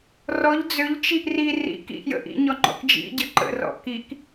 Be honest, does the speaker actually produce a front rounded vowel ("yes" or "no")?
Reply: yes